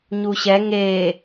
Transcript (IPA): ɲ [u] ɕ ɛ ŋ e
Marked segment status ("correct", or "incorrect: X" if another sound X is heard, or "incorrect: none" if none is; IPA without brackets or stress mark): correct